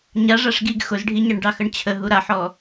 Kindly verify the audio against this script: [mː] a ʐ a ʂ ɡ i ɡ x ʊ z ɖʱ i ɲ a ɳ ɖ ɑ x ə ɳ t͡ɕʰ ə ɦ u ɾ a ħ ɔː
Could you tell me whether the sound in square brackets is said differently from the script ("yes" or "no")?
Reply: yes